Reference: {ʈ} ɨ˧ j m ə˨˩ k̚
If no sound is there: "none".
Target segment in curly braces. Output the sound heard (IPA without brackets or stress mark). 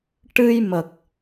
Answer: ʈ